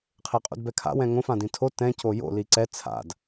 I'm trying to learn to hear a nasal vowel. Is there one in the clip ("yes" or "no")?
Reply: yes